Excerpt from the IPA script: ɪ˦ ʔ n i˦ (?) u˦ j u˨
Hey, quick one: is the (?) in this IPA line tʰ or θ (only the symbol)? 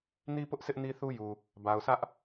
θ